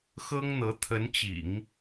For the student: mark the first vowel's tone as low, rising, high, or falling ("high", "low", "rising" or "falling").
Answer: high